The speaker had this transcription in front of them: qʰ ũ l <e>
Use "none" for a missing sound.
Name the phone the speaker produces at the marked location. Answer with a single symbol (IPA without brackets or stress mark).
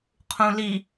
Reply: i